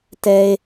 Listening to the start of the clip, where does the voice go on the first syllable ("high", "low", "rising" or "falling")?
high